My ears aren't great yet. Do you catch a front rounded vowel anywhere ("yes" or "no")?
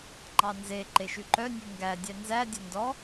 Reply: yes